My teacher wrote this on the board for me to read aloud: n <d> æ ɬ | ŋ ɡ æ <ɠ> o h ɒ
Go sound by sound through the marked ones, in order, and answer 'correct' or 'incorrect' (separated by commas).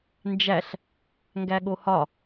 incorrect, correct